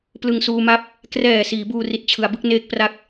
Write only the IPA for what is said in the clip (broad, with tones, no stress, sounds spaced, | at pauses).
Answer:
p l ɯ˧ ŋ s uː˧ m a˥˩ p̚ | k r ɛː˨˩ s iː˩˦ b uː˧ r i˨˩ t̚ t͡ɕʰ ɯ˩˦ a̯ b ɯ˥˩ k̚ n eː˥˩ k̚ p r a˥˩ k̚